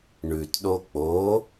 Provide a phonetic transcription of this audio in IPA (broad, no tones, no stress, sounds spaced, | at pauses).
ɳ ʉ t ɗ o k͡p o